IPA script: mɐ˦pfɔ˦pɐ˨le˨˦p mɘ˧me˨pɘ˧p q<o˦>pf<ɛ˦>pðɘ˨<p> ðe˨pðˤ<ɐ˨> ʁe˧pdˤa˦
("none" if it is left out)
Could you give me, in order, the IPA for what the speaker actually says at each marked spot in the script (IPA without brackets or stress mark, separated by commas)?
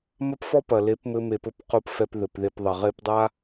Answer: o˦, ɛ˧, p, ɐ˨